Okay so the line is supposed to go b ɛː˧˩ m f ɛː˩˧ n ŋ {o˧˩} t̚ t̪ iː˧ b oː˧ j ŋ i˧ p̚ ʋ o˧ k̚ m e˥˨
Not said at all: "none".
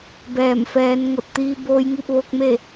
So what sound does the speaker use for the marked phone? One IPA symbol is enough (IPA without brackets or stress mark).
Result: o˧˩